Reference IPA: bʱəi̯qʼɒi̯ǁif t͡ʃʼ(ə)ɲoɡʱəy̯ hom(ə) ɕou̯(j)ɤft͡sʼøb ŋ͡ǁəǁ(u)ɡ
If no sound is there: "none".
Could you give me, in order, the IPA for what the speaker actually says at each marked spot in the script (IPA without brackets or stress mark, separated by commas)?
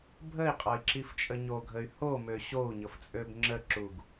ə, ø, ɲ, u